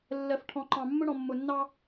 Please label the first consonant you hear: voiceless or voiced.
voiced